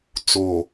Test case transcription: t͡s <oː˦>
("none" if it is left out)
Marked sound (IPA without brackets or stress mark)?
oː˨